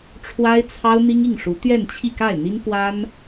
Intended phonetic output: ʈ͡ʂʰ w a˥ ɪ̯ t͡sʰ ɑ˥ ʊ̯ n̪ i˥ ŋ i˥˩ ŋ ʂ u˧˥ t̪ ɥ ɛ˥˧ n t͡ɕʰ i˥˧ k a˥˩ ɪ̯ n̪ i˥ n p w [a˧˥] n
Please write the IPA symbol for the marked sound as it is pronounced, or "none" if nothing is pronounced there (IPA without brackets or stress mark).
a˥